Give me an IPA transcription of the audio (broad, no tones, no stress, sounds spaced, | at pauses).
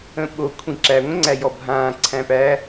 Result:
ə̃ ɓ o kʷʰ ĩ ǁ æ ŋʷ ə̃ ŋ͡ǀ æ j ɔ bʱ ãː ǀʰ æ̃ p æ